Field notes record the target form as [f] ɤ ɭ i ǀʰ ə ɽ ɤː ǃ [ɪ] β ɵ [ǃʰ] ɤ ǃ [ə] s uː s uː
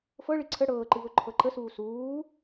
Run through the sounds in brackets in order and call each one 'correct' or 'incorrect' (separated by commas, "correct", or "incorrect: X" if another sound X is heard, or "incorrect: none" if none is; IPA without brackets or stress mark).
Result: correct, incorrect: ɨ, correct, correct